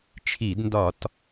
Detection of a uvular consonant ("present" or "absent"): absent